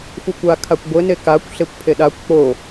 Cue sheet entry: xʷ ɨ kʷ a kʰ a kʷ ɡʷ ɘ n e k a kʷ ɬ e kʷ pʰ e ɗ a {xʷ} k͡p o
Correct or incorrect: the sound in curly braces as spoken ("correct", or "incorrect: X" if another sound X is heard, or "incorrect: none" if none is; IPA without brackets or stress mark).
incorrect: kʷ